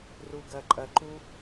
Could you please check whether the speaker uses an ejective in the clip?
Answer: yes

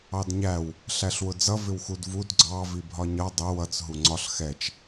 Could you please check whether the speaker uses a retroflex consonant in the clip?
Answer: no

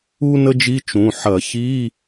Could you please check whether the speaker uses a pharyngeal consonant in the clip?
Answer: yes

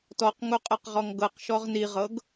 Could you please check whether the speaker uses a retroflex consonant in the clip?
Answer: no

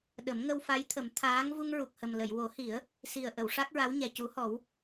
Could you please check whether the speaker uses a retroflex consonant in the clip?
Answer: yes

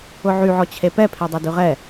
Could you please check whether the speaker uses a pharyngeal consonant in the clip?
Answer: yes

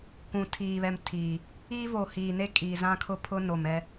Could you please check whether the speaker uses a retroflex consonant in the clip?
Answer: no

